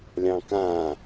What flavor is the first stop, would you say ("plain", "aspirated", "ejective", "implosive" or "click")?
plain